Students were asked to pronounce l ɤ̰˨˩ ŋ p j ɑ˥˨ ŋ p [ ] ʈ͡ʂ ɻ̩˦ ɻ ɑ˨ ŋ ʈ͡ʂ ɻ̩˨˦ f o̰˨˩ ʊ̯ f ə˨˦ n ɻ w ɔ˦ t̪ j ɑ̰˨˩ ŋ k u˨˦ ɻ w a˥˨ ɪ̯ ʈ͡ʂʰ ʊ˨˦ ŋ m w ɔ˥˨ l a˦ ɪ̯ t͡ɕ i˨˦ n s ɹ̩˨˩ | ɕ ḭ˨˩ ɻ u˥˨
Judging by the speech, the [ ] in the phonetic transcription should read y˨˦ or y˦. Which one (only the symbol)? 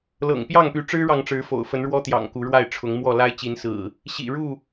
y˨˦